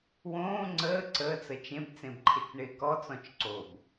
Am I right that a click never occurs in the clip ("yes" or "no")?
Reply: no